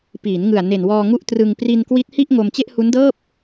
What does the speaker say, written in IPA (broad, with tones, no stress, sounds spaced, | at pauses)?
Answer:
p iː˩˦ n ŋ ɯ˨˩ a̯ n e˨˩ n w ɔː˧ ŋ u˦˥ ʔ t r ɯ˧ ŋ p r i˧ n k w i˦˥ t̚ h i˥˩ ʔ ŋ o˧ m t͡ɕ e˥˩ ʔ h u˦˥ n d ɤː˥˩ p̚